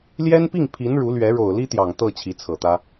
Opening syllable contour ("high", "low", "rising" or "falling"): high